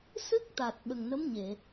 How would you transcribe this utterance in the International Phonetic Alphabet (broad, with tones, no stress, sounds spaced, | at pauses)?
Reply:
s ɨ˦˥ k̚ t̪ a˨˩ t̚ ɓ ə˨˩ ŋ n ə˧˥ m ɲ e˨˩˨